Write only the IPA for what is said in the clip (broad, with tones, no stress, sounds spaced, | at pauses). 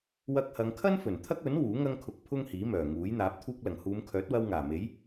w ɐ˧ k̚ h ɐ˨˧ ŋ kʰ ɐ˥ n f ɵ˨˩ n t̪ʰ ɐ˥ k̚ ɵ˨˥ n w uː˨˥ ŋ ɐ˥ ŋ kʰ ʊ˧ k̚ pʰ ʊ˥ ŋ h iː˨˥ m œː˨˩ ŋ uː˨˥ j n̪ aː˨˥ p̚ t̪ʰ uː˧ k̚ l ɐ˨˩ ŋ h uː˨˧ m kʰ œː˨˥ t̚ w ɐ˧ w ŋ aː˨˩ m e˨˥ j